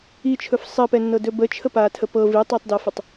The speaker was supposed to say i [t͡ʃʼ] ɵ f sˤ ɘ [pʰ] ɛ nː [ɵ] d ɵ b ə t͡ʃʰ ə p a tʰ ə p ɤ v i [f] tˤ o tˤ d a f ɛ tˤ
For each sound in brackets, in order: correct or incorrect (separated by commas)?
incorrect, incorrect, incorrect, incorrect